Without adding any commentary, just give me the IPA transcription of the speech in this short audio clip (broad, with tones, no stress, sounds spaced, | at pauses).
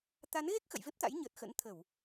t̪ a˨˦ n ɣ e˦˥ k̚ x ə̰˧˨ j v e˦˥ p̚ t̪ a̰˧˥ j ɲ əː˨˩ t̚ x ə̰˧˥ n t̪ʰ ə˧˩˨ w